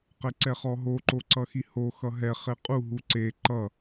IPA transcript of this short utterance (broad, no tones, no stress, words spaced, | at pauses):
qɛǀɛχɔɦo ǃoǀʌxiho xʌɦɛ χeqʼu ɦuǀe ǃʌ